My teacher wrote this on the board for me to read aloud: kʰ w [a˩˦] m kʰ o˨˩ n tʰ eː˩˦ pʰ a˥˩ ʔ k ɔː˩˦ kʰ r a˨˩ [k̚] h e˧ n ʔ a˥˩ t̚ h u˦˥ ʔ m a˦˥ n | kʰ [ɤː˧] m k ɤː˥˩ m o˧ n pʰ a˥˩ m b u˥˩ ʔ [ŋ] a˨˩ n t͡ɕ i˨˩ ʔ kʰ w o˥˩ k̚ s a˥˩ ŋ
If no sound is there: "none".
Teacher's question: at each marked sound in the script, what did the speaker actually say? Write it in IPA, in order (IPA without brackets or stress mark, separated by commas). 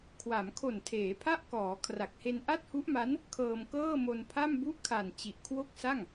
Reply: a˩˦, k̚, ɤː˧, kʰ